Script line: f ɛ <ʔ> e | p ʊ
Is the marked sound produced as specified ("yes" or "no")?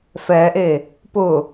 yes